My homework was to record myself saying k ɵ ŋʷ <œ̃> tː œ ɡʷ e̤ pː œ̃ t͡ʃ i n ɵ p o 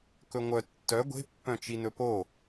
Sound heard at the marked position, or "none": œ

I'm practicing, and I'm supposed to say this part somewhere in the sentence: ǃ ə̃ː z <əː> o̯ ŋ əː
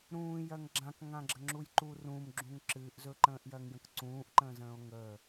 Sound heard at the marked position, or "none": ə̃ː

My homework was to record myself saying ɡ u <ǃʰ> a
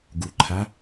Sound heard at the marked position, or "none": ǃʰ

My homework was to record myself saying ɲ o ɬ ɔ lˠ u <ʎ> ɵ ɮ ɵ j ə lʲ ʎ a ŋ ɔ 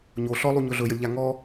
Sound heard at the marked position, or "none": ɲ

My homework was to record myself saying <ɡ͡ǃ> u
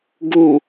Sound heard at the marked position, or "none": ɡ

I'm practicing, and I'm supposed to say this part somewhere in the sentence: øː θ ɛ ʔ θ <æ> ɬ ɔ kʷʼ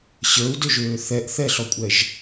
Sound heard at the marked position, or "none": ɛ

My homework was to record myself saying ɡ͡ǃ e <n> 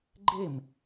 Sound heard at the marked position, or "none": m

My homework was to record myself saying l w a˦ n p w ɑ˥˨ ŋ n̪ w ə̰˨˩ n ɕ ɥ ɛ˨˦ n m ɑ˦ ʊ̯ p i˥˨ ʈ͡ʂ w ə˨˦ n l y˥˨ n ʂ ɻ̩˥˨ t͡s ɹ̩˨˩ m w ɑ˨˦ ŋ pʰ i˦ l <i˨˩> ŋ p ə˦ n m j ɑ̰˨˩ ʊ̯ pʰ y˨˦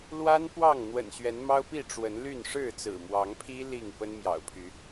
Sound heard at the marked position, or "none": i˥˨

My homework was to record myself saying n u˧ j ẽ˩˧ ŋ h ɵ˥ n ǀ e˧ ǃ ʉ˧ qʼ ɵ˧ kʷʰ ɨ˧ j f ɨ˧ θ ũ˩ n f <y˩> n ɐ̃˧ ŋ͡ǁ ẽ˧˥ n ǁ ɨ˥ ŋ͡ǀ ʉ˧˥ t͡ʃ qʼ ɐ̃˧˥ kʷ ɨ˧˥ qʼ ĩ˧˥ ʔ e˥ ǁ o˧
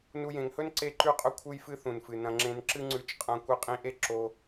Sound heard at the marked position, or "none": ɨ˩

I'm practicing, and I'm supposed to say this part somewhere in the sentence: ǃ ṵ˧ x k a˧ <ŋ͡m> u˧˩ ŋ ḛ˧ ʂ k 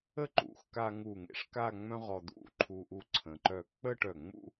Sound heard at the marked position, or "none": ŋ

